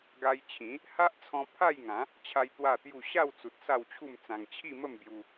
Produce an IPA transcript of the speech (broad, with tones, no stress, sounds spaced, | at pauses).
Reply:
ɡ a˧ j t͡ɕʰ ĩ˨˦ | h a˦ ʔ t͡sʰ ɔ̃˧ pʰ a˥˧ j ŋ ã˨˦ | t͡ɕʰ a˦ j t̪ w a˥˧ t̪ j u˥˧ ɕ a˥˧ w t͡s u˨ t̚ s a˥˧ w t͡ɕʰ u˥˧ m t͡s ã˧ ŋ t͡ɕʰ i˥˧ m ə˥˧ m b j u˧